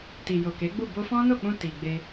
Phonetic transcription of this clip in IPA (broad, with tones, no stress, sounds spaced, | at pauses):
t i˨ j o˨ k e˨˦ ɡ͡b u˦˨ b o˧ f ɔ̃˦ n o˦˨ k͡p ũ˧ t i˨ ɡ͡b e˧